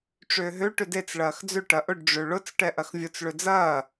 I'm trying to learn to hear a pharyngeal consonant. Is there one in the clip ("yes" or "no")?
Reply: no